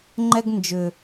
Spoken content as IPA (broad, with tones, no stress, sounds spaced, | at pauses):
ŋ͡ǃ ɛ˦ ɡ n d͡ʒ ʏ˨